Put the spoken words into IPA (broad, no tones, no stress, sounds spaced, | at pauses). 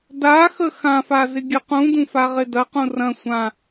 d a x ə x ã f a z ɪ ɡʲ ɐ q ũ d ũ f a ʁ ɪ d ɐ q ũ r ɐ̃ sʷ ã